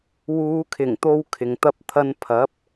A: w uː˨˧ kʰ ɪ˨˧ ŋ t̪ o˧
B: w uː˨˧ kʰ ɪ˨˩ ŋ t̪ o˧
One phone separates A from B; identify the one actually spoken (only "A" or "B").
B